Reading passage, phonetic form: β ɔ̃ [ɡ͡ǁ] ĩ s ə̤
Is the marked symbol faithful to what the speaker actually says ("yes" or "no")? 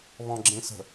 yes